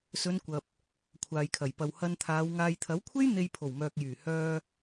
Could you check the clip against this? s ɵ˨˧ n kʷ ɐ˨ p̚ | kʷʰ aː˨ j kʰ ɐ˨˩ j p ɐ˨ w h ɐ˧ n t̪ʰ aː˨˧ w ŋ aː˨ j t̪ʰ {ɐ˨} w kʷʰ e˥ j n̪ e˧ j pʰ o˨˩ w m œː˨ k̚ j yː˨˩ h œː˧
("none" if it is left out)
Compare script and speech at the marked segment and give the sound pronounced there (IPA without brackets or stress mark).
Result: ɐ˨˥